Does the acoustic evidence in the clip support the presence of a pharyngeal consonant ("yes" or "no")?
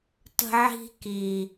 yes